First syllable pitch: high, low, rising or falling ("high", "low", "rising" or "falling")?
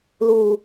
low